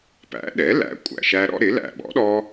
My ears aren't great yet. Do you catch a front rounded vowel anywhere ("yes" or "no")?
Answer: no